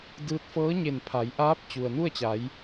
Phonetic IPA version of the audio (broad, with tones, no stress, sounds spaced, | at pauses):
d ɯː˧ t̚ f ɤː˧˥ ɲ e˧˩ n pʰ a˩˧ j ʔ aː˧˥ p̚ t͡ɕ u˩ ə̯ n u˥˨ ə̯ t͡ɕ a˩˧ j